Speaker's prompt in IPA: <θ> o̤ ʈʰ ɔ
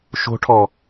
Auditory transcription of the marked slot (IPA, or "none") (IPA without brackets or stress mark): ʃ